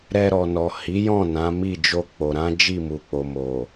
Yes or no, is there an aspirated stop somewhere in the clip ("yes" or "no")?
no